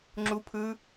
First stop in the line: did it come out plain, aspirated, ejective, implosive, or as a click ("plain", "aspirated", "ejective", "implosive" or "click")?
click